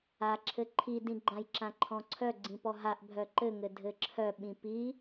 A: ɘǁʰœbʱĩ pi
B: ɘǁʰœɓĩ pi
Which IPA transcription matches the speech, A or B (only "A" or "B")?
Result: B